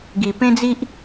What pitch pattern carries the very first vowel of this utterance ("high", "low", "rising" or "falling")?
low